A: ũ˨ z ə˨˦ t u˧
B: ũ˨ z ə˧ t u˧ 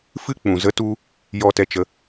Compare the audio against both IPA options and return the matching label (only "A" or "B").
A